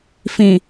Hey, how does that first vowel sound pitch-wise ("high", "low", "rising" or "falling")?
low